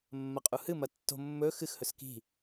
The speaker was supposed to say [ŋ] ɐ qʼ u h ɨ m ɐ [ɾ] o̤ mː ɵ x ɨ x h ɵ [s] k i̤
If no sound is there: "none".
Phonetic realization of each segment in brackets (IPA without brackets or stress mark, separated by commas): mː, tː, s